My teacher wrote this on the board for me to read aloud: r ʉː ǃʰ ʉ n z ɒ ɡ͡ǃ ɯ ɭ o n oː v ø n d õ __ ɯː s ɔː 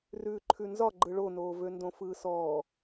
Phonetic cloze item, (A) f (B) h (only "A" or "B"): A